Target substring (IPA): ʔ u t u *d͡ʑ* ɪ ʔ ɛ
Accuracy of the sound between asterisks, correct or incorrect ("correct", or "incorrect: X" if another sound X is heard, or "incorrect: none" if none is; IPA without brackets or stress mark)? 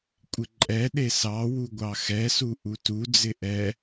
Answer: incorrect: d͡z